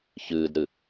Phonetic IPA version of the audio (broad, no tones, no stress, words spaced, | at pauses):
çɨːdɾɨ